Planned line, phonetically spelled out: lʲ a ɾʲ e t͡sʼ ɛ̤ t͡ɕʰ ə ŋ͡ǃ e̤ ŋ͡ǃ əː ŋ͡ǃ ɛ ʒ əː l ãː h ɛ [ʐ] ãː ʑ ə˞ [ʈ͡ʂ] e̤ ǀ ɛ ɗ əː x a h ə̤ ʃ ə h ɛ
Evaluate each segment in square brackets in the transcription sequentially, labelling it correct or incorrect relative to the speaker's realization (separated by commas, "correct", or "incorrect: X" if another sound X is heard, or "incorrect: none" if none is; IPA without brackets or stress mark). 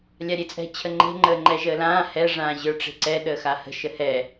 correct, correct